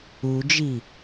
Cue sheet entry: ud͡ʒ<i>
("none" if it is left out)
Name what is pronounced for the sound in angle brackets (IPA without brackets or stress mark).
i